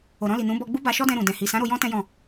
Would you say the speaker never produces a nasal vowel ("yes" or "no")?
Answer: no